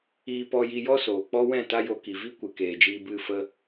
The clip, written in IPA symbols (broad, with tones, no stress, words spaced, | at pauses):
iː˧pɔ˧ji˧jɔ˦ soː˨k͡pɔ˦wɛ̃˦˨ ta˦jo˧ki˨ vi˦kʷɨ˨ keː˨d͡ʒiː˧ bɨ˦˨ fə˧